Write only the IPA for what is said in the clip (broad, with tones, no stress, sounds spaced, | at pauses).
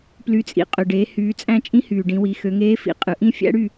p l y˩˧ t͡sʼ ḭ˩ qʼ ø˩ ɖ eː˩˧ h yː˩˧ t͡sʼ æ̃˦˨ t͡ʃʼ ĩ˧˥ h yː˩ ɖ ĩ˩˧ w i˩˧ x ø˩˧ ŋ eː˧˥ f ḭ˩˧ qʼ ɯ˩˧ ʔ ĩ˦˨ fʲ æ̰˧˥ ɽ y˦˨